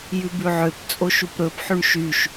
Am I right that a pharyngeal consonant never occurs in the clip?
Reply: no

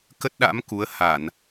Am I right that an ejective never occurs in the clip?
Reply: yes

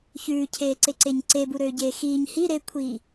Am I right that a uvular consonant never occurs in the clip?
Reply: yes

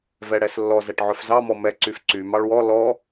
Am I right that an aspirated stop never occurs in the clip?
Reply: yes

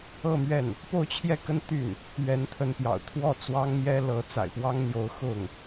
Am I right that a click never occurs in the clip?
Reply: yes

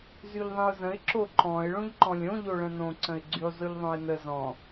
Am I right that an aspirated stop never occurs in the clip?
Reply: yes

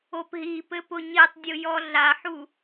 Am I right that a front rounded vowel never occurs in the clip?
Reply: yes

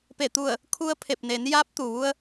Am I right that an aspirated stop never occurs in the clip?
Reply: no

